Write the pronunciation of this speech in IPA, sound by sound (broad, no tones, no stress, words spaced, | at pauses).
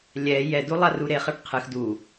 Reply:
lʲɛ jɛdu lˠaruɾeχɐɖ qʰɨx du